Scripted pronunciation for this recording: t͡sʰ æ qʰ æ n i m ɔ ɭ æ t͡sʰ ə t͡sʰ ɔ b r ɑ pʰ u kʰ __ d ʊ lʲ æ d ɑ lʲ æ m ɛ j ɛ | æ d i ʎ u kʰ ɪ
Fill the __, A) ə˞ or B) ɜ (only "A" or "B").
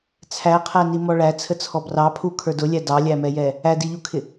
A